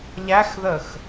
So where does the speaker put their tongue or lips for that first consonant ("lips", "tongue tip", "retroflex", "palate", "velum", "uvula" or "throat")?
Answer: palate